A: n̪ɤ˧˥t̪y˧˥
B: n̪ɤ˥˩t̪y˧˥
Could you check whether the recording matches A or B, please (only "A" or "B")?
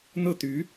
B